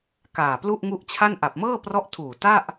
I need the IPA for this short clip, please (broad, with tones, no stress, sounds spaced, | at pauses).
k aː˨˩ p l u˥˩ ʔ ŋ u˦˥ ʔ t͡ɕʰ a˥˩ n ʔ a˨˩ p̚ m ɤː˥˩ p r ɔ˦˥ ʔ tʰ uː˨˩ t a˥˩ ʔ